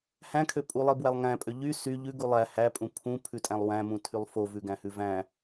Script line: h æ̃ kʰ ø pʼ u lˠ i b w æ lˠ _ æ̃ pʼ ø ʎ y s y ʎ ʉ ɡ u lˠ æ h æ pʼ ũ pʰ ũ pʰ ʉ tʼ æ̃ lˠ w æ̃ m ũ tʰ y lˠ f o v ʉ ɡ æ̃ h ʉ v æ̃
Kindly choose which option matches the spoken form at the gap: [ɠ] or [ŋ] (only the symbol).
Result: ŋ